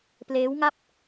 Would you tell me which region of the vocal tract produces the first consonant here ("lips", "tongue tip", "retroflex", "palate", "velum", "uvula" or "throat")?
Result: lips